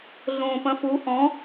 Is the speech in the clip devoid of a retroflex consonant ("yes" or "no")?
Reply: yes